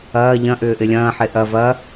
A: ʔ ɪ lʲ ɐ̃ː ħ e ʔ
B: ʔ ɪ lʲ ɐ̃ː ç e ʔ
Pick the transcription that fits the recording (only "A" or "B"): A